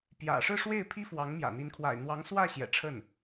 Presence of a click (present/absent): absent